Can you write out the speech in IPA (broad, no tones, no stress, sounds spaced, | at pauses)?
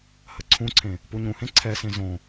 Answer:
h ə ǀʰ ũ ǀʰ ẽ | p u ɲ ũ h ẽ ǀʰ ɛ s ẽ z õ